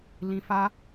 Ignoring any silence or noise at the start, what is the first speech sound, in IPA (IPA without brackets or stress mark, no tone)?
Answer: l